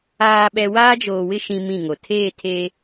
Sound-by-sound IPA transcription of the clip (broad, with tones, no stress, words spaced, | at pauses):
aː˨ɓɛ˨ waː˦d͡ʒoː˨wɪ˦ ʃĩ˦mĩ˦˨ŋo˨ tʰeː˦˨tʰe˦